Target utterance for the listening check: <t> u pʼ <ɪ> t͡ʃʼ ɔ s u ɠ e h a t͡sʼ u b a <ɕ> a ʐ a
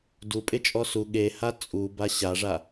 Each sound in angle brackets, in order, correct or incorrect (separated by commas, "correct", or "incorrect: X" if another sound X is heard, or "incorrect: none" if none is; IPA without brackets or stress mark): incorrect: d, correct, correct